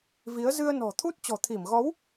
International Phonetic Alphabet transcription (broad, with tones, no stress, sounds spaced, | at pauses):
v i˨˦ ə̯ z ɨ˧ ə̯ n ɔ̤˨˩ t̪ʰ u˦˥ t̚ t͡ɕ ɔ̤˨˩ t̪ʰ i˧˩ m ɣ ɔ˨˦ w